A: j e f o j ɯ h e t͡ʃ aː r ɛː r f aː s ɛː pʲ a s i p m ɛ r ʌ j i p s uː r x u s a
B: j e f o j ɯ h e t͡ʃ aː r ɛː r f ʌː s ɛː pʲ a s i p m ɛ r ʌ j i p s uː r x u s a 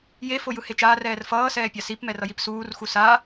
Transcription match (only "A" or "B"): B